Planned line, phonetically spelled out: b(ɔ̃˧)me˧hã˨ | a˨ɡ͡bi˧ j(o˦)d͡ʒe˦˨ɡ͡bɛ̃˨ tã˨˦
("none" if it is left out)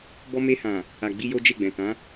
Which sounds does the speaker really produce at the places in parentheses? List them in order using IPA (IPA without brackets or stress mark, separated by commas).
ɔ˧, o˦